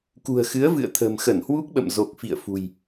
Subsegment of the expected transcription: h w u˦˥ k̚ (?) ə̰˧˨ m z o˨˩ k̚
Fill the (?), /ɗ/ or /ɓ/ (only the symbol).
ɓ